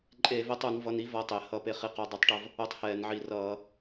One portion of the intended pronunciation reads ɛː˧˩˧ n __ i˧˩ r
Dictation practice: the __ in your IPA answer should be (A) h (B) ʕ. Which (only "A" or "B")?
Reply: B